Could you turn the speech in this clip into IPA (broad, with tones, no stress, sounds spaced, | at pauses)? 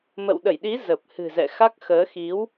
m ə̰˧˨ w ɗ ə˧˩ j ɗ i˨˦ z ə˨˩ p̚ h ɨ̤˨˩ z ɛ̰˧˨ x a˦˥ k̚ x əː˨˦ x i˨˦ w